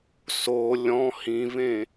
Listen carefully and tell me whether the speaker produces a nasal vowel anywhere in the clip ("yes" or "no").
yes